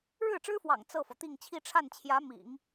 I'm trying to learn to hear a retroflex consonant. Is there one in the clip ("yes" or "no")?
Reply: yes